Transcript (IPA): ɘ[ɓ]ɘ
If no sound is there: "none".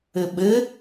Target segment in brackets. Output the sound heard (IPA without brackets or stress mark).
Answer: ɓ